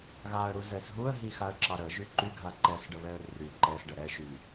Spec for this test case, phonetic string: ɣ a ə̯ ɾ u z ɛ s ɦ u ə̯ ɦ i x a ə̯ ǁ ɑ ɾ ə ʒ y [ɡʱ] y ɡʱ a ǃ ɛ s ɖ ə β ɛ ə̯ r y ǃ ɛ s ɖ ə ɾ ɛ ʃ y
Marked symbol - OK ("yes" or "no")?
no